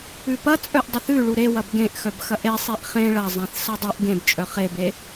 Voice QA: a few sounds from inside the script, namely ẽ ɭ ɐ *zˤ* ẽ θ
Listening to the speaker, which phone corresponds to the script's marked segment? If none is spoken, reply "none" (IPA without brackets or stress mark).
zˤ